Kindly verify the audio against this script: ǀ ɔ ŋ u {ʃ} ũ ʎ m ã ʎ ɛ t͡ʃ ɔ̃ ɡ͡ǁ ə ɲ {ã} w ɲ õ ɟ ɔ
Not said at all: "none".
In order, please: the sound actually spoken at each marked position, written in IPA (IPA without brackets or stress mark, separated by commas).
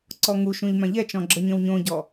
ʃ, ə̃